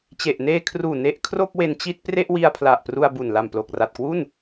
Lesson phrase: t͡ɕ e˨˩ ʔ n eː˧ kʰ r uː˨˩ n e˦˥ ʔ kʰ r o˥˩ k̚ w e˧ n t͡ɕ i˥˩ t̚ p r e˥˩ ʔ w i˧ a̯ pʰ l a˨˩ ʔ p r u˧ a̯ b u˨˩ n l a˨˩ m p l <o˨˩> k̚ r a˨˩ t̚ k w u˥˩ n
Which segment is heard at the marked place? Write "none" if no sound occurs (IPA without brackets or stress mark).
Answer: o˨˩